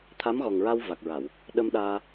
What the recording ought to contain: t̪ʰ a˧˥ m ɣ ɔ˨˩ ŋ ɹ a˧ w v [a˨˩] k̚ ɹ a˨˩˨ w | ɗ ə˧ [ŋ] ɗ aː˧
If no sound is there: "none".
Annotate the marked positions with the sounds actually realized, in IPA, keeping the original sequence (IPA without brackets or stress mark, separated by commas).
a˨˩, m